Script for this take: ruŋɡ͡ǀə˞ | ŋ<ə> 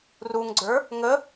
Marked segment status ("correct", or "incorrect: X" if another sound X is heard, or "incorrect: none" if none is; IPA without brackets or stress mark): correct